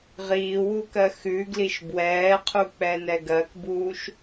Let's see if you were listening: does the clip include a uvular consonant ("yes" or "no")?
yes